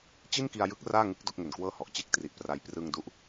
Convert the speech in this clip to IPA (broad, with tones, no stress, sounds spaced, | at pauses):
t͡ɕ i˥˩ n k i˧ a̯ j ɯ˦˥ k̚ r aː˥˩ ŋ ɯ˦˥ k̚ d o˦˥ k̚ ŋ e˨˩ n k w ɤː˥˩ h ɔ˨˩ ʔ t͡ɕ e˥˩ k̚ t r i˨˩ ʔ p r a˧ j p r ɯ˧ ŋ d u˦˥ ʔ